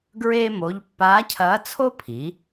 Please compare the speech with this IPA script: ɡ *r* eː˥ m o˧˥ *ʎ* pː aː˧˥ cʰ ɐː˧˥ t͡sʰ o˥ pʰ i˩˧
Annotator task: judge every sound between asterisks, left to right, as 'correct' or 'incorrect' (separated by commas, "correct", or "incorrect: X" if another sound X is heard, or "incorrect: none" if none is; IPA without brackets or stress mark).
incorrect: ɹ, correct